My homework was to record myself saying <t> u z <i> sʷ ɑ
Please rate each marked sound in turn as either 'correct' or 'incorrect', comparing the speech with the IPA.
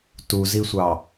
correct, correct

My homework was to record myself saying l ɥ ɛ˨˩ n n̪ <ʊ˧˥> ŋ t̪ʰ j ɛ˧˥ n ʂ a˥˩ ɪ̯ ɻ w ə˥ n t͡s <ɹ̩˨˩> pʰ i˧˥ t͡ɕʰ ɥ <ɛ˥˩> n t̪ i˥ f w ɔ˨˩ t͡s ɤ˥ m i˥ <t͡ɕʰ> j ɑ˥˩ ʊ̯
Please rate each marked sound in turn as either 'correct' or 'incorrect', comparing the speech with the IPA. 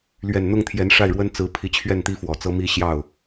incorrect: ʊ˥˩, incorrect: ɹ̩˧˥, correct, incorrect: ɕ

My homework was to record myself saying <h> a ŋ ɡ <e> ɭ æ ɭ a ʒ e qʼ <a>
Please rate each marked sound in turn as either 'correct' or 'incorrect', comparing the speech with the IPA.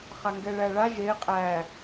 incorrect: χ, incorrect: ɛ, incorrect: æ

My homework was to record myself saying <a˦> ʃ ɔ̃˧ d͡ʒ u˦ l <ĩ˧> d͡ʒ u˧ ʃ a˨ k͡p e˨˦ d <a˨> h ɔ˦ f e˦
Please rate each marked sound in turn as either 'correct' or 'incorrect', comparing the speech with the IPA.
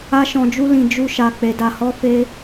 correct, correct, incorrect: a˧

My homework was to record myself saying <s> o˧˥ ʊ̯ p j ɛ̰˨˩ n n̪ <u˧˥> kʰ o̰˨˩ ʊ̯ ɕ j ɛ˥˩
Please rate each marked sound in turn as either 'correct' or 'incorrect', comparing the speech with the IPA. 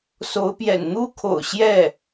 correct, incorrect: u˥

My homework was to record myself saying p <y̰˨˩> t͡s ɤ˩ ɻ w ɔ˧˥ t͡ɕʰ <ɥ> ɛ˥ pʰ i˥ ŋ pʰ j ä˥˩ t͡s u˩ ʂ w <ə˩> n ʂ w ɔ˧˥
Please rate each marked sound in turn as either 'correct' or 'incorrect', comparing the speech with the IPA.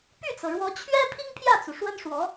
incorrect: y˥˩, correct, incorrect: ə˥

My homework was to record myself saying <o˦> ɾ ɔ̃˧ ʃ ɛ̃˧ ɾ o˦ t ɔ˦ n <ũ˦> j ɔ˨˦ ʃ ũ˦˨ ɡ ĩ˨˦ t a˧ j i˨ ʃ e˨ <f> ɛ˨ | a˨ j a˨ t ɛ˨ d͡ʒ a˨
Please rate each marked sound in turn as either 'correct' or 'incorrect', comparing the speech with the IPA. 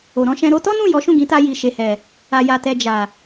incorrect: o˨, incorrect: ũ˦˨, incorrect: h

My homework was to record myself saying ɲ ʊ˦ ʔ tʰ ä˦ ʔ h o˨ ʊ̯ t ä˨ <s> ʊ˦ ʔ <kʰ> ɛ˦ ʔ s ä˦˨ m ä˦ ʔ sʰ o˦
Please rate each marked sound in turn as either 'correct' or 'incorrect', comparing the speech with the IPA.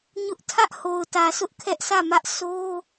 correct, correct

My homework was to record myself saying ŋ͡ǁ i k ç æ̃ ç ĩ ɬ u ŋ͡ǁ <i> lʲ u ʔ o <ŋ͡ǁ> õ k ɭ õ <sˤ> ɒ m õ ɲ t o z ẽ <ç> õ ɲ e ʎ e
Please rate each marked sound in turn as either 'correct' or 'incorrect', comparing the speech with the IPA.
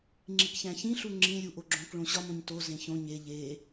incorrect: ĩ, incorrect: ɡ͡ǁ, incorrect: ɕ, correct

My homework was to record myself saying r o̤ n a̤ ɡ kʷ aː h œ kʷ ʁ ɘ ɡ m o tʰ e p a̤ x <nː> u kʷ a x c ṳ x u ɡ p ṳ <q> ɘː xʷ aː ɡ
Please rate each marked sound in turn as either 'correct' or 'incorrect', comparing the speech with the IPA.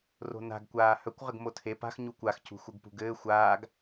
incorrect: ɲ, incorrect: ɡ

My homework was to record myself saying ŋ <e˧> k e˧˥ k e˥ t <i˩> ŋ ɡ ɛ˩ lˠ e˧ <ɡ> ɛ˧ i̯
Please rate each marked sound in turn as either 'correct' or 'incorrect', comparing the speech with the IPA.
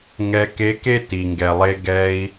incorrect: ɛ˧, correct, correct

